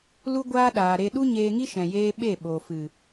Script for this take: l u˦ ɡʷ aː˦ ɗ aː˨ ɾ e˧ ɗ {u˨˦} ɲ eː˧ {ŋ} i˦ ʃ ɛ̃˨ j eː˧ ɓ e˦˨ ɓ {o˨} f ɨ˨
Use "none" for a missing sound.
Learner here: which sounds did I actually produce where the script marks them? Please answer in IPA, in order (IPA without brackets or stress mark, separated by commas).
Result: u˦, ŋ, o˨